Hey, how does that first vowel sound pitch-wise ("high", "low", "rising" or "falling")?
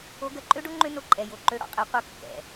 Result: rising